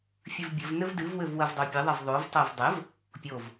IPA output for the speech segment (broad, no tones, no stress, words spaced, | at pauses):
fʲɨvbʲɘv nɘvdɨv wɘvwɐvdˤopʲɘ ðˤɐvðˤov tˤovdˤɘv | pʲov